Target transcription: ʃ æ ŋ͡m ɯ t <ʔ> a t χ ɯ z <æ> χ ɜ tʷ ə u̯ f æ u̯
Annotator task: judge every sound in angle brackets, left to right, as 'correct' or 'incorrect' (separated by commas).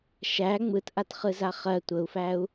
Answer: correct, incorrect